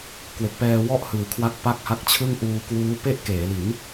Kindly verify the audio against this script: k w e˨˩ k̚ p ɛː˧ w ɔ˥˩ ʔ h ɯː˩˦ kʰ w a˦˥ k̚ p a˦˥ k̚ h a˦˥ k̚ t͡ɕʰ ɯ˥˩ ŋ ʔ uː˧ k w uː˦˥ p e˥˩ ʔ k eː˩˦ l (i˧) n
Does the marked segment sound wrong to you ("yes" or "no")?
yes